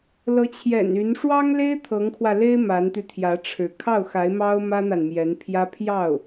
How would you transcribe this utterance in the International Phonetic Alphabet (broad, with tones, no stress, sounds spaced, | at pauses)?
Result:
l ɤ˧˥ t͡ɕʰ j ɛ̰˨˩ n y˧˥ n ʂ w ɑ˥ ŋ l e˥ ɪ̯ t̪ʰ ɤ˧˥ ŋ kʰ w ä˧ l e˥ ɪ̯ m a˧˥ n t̪ y˧ t̪ʰ j ä˧˥ ʈ͡ʂʰ ɻ̩˧˥ kʰ ɑ˥˩ ʊ̯ x a˧˥ ɪ̯ m ɑ˥ ʊ̯ m ä˥ n̪ a˨ n m j ɛ˧˥ n pʰ j ä˥ pʰ j ɑ˥˩ ʊ̯